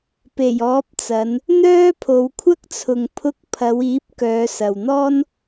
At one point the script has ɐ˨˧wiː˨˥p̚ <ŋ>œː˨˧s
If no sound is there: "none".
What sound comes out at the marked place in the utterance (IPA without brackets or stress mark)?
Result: k